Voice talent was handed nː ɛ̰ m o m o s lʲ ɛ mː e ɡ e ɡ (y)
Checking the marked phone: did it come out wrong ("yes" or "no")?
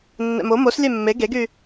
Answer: no